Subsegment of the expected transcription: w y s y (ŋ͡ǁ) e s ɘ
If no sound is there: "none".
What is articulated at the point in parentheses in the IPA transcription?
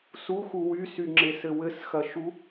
ŋ͡ǁ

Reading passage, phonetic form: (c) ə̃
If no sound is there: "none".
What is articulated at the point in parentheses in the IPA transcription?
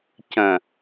c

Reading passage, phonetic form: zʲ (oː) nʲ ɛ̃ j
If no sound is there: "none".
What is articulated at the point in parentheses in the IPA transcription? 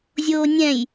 oː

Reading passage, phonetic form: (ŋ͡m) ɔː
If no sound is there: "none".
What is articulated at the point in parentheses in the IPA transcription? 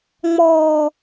ŋ͡m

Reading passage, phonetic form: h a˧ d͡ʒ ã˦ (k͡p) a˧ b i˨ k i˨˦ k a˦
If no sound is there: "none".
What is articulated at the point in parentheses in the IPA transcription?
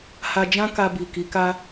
k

